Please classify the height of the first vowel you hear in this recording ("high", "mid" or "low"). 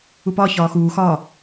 high